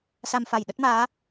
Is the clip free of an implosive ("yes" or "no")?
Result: no